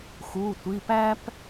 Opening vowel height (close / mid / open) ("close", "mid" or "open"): close